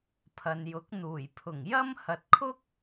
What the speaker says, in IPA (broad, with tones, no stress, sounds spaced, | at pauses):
pʰ ɐ˨ n j ʊ˨˥ k̚ n̪ uː˨˩ j pʰ ʊ˨˩ ŋ j ɐ˥ m h ɐ˨ t̚ kʰ ʊ˥ k̚